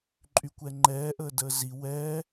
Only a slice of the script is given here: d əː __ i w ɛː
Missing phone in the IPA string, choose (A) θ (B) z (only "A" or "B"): B